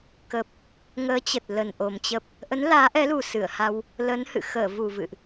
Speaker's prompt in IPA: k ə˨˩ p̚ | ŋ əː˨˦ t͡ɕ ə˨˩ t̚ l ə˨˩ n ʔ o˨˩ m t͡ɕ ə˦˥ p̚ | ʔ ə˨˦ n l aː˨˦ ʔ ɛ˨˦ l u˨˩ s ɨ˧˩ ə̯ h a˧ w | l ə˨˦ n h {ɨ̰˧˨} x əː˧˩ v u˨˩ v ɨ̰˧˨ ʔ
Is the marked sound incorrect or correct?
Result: correct